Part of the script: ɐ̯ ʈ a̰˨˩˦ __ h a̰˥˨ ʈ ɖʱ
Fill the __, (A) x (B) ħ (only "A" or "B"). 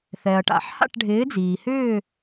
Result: B